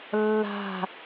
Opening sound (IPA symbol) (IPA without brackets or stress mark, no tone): lː